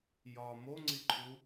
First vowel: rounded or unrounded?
rounded